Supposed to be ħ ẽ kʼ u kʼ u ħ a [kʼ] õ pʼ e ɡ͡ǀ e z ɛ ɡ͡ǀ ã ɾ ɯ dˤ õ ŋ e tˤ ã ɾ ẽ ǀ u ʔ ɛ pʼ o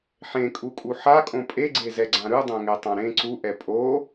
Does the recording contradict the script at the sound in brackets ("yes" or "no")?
no